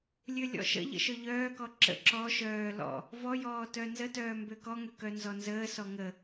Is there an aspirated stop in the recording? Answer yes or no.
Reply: no